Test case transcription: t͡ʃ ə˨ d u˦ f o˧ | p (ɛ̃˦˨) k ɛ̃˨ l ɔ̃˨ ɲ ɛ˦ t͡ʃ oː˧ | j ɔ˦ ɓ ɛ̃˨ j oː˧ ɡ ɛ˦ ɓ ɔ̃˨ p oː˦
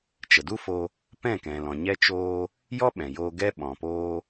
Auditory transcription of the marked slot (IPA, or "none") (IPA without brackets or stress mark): ɛ̃˦˨